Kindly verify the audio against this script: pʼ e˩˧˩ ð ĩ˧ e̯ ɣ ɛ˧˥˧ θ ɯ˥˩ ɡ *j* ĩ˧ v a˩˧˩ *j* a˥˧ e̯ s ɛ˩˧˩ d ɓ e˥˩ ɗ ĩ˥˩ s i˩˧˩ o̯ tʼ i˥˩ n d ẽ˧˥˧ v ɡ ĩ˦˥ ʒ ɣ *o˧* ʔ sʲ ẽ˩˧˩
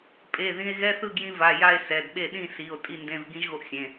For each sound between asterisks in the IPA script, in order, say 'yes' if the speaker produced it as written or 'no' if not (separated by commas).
yes, yes, yes